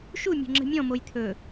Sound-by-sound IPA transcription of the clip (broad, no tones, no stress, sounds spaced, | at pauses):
ʃ u mʲ o̤ ŋ͡ǁ ə̤ mʲ ɔ̃ m o j t̪ʰ ɵ